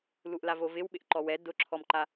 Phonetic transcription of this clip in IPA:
l u ʔ l a v o v ɪ w ɓ ɪ ʔ ǃ ɔ w ɛ d ʊ ǁʰ ɔ m ǃ a

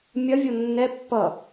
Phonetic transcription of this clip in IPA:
mʲ ɐ vʲ o nː ɛ pː ʌ

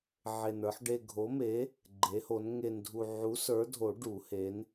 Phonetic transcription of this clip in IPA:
ʕ e˧ n ə˞˨˥ ħ ɖ e˧ ɡʱ o˨˥ m e˨˥ | ɡ͡ǃ e˨˥ h o˨˥ n ŋ e˧ n dʱ u˧ ʕ u˨˥ s ə˞˨˥ dʱ o˨˩˦ ɖ u˨˩˦ h e˨˥ n

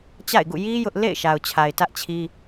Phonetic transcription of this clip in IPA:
t͡ɕ a̰˦˨ ɪ̯ ɡ ṵ˦˨ j i˦ j ʊ˦ ʔ l ḛ˦˨ ɪ̯ ʃ a˨ ʊ̯ t͡ɕʰ a˨ ɪ̯ t ä˦ ʔ t͡ɕʰ i˦

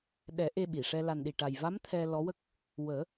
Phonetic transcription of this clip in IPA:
ɗ ɛ˨˩˦ ʔ e˧ ɓ i˨˩˨ ʂ ɛ˧ l a˨˩ n ɗ i˨˩ ʈ a˨˩ j v a˧˥ m t̪ʰ ɛ˧ l ɔ˧˥ w ə˦˥ k̚ | w əː˨˩˦

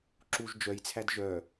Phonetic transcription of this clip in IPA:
ǁ u ʒ d͡ʒ œ j t͡sʰ æ d ʒ œ

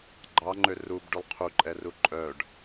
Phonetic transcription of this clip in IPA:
ɡ͡ǃ ɑ ŋ͡ǃ ø r u b ɖ y lˠ qʰ u ǃʼ ɛ r u ǃʼ œ ɖ

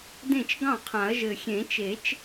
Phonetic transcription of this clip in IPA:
d ẽ˥˩ t͡ʃ ɡ ɑ̃˥˩ qʰ ã˨˩˦ ɐ̯ ʒ ɘ˨˩ xʲ ẽ˨˩˦ t͡ʃ e˨˩˦ t͡ʃ

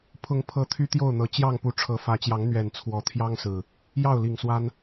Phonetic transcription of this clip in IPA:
pʰ ʊ˨˦ ŋ pʰ ɤ˨˦ t̪ʰ y˦ t̪ j o˥˨ ʊ̯ n̪ ɤ˨˦ t͡ɕ j ɑ˥˨ ŋ p u˨˦ ʈ͡ʂʰ ɤ˨˦ f ä˨˦ t͡ɕ j ɑ˨˦ ŋ n̪ ɥ ɛ˨˩ n t͡sʰ w ɔ˨˦ t̪ʰ j ɑ˦ ŋ s ɹ̩˨˩ | j ɑ˥˨ ʊ̯ l i˨˩ ŋ s w a˦ n

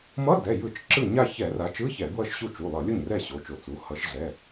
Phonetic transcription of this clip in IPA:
m ʌ˧˥˧ d ɛ˩˧˩ j ɯ˧˩˧ t͡ʃ ǁ ɯ˥˩ ɲ a˥˧ ç ɛ˧˩˧ r a˨˦ t͡ʃ ɯ˧˥˧ ç ɛ˧˩˧ ɡ w ʌ˥˩ ʃ ɕ u˥˩ t͡ʃ u˩˧˩ lˠ ʌ˧˩˧ lʲ o˥˩ ɲ r ɛ˥˩ ɕ o˩˧˩ t͡ʃ o˧˩˧ t͡s u˩˧˩ h ʌ˨˦ ʃ ɮ ɛ˩˧˩

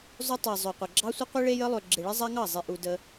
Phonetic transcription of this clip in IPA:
zˤ ø˦ tˤ a˨ zˤ ø˨ qʷ ə˨ ɡ͡ǁ ɑ˦ sʷ ə˦ qʷ i˦ ɭ e˦ j ə˦ lˠ ø˨ ɡ͡ǁ e˨ ɭ e˦ zˤ a˦ ŋ ɑ˦˨ zˤ e˨ ʔ u˨ d ə˦

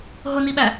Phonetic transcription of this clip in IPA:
ɦ ʊ n i ɓ æ

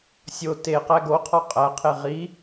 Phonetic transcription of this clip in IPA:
sʲ o t e q æ ɡ o qʰ ɒ qʼ æ qʰ e ʁ i

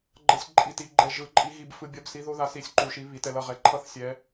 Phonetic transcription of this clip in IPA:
ɡ͡ǃ ʌ˥ sʲ ǃʼ i˧˥ t i˧˥ ɡ͡ǃ ɛ˥ ʒ ɯ˧˥ ǃʼ i˥ ɣ i˥ b f ɯ˥ bʲ ʌ˥ b s i˧˥ ð o˥ ð a˧˥ s i˧˥ sʲ ǃ u˧˥ ʃ i˧˥ β i˧˥ t ɛ˥ l ʌ˥ ʁ ɛ˧˥ ǃʰ ʌ˥ θ sʲ ɛ˧˥

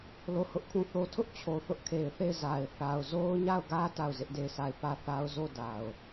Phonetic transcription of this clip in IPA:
l o˦˨ h ʊ˦ ʔ kʰ ũ˦˨ θ o˦ tʰ ʊ˦ ʔ t͡ɕʰ o˨ θ ʊ˦ ʔ kʰ e˨ ɪ̯ θ e˦˨ ɪ̯ z a˨ ɪ̯ θ a˨ ʊ̯ z o˦ ʊ̯ ɲ a˦˨ ʊ̯ ɡ ä˦ t a˦˨ ʊ̯ z ɪ˦ ʔ d e˦˨ ɪ̯ s a˦˨ ɪ̯ p ä˦˨ θ a˦ ʊ̯ z o˦˨ d a˨ ʊ̯

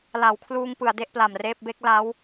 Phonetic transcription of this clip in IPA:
l a˩˦ w kʰ l uː˧ ŋ p ɯ˩˦ a̯ d e˥˩ ʔ p l a˨˩ m r eː˥˩ p̚ b e˦˥ k̚ l a˦˥ w

